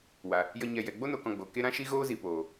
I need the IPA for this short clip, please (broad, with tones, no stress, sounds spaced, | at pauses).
w a˨ | j ə˧ ɲ ɛ˨ j ɛ˨ ɡ͡b o˦ n o˧ k ɔ̃˧ ɡ͡b o˨ k e˦ ɾ ã˦ ʃ i˦ ɣ oː˦ z i˨ p oː˨